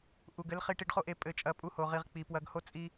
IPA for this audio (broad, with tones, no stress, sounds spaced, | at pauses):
ʔ u˨ ɡ ɘ˨˦ l χ i˧ ʈ i˧ ɖ χ o˦ ʔ e˧ pʼ ɘ˧ t͡ʃʼ ɐ˧ pʼ u˧ h o˨ ʁ i˨ ʁ k͡p i˨ p w ɐ˧ ɡ h o˦ t͡sʼ i˧